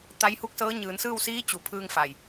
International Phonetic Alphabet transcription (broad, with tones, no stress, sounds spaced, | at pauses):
t̪ a˧˥ j h u˧˥ k̚ s ɤː˧˥ ɲ ɯː˩˧ n s ɯː˥˨ w s iː˧˥ t͡ɕ u˩ pʰ ɯː˧ ŋ f a˩ j